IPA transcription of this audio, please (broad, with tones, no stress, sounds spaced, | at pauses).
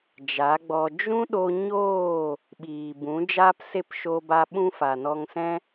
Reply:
d͡ʒ a˨˦ ɡ͡b ɔ˧ d͡ʒ ũ˦ ɗ o˧ ɲ oː˦˨ | ɓ iː˨ b ũ˨˦ d͡ʒ aː˦ p s e˦˨ p ʃ o˧ b a˧ ɓ ũ˦ f a˨ n ɔ˧ ŋ s ɛ̃˦